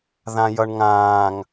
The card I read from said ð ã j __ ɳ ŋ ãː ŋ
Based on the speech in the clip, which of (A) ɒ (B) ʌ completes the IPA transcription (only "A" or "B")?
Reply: B